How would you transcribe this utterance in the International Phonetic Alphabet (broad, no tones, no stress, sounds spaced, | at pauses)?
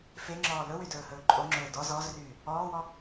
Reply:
f e ŋ͡ǁ ɔː l ɵ w y d ɵː h ɵː ǃʼ o ŋ͡ǁ ɵː d ɔ z ɔ z r yː | ɔː w ɔ